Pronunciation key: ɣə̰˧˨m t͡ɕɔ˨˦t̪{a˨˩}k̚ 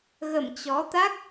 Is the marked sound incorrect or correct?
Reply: incorrect